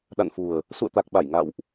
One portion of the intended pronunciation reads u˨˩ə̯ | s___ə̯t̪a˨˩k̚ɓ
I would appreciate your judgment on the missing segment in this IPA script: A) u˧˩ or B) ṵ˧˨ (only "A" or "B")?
B